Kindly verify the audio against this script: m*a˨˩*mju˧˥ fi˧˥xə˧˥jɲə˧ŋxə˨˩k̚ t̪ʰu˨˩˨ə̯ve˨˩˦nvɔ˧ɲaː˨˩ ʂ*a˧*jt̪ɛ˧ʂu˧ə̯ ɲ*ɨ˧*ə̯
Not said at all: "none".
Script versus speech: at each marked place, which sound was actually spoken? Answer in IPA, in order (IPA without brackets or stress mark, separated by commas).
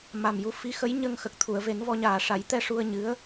a˨˩, a˨˩˦, ɨ˧˥